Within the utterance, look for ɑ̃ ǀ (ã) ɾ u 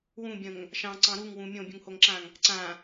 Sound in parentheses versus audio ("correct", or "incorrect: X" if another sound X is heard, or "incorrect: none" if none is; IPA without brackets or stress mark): incorrect: ɑ̃